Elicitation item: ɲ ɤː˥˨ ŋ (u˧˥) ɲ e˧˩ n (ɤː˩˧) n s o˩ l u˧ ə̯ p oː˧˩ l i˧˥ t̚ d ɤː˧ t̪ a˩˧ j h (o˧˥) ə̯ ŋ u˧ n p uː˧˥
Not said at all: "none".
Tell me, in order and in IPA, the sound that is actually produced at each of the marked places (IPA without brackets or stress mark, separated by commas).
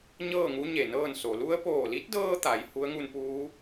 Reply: u˧˥, ɤː˥˨, u˧˥